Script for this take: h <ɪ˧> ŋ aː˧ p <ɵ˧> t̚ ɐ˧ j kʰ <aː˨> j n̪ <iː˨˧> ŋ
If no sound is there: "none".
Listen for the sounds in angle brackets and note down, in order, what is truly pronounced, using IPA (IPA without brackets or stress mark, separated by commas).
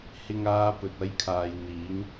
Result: ɪ˧, ɵ˨, aː˨, iː˨˧